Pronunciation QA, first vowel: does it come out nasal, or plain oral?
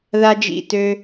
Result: oral